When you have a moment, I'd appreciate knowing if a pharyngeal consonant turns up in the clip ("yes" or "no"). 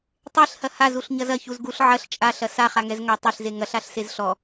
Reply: yes